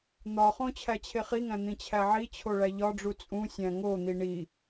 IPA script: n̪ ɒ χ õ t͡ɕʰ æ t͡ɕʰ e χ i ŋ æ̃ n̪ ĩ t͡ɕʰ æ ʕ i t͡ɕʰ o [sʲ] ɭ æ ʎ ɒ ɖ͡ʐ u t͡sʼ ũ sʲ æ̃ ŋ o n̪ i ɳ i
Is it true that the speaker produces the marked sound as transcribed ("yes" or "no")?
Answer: no